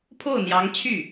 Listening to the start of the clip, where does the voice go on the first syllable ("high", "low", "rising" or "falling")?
falling